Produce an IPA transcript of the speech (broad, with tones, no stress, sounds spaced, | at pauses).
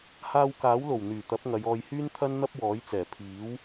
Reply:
h aː˧ w k aː˨˥ w l o˨˩ w n̪ yː˨˩ t̪ ɐ˨˥ p̚ ŋ ɐ˨˧ j ɔː˨ j h yː˥ n t̪ʰ ɐ˥ n n̪ ɐ˥ p̚ w ɔː˨˥ j t͡s ɛː˨˩ pʰ iː˨˥ w